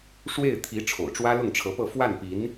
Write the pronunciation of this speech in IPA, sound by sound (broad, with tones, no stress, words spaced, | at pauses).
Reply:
ʂwe˥˩ɪ̯ t̪ʰi˧˥ ʈ͡ʂʰo̰˨˩ʊ̯ʈ͡ʂwä˥ lʊ˥˩ŋʈ͡ʂʰɤ˧˥pɤ˥˧ fwa˥˩npi˧˥n